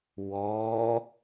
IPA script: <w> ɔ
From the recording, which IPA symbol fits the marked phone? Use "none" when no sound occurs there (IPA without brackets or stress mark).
w